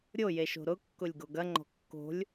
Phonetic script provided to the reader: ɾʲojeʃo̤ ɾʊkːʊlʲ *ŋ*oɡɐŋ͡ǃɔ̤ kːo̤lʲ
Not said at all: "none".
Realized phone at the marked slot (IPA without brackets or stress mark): ɡ